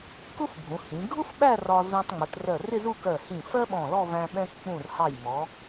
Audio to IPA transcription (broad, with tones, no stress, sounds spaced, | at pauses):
k ʊ˥ f bʱ ũ˩˧ h ĩ˩˧ ɡʱ ʊ˥ f ɓ æ˥˧ r ɒ˧ z ũ˧ tˤ ŋ͡m ə˩˧ t r ɜ˧˩ r ɪ˥˧ z u˥˧ k ɜ˧˩ h ĩ˧˩ f ɜ˥ ɓ ɔ̃˧˩ l ɔ˥˧ v æ̃˧ ɓ ɛ̃˧ k k͡p ũ˧˩ r h ɑ˧˩ j m ɔ˩˧